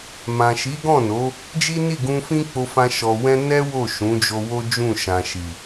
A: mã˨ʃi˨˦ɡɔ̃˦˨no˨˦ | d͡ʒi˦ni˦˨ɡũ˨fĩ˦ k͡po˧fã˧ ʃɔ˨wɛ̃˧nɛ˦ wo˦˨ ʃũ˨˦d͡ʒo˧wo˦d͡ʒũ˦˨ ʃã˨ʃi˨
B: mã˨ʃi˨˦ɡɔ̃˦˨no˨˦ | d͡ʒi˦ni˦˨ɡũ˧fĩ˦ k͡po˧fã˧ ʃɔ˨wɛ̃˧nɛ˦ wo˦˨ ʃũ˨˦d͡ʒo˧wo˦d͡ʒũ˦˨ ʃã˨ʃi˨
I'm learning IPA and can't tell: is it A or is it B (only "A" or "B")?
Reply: B